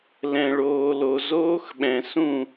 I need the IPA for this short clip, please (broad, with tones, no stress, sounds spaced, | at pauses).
l ɛ̃˨ ɭ oː˨ l o˨ z oː˦ x ɓ ɛ̃˨ s ũ˦˨